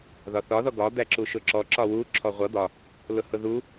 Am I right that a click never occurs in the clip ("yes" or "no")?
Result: no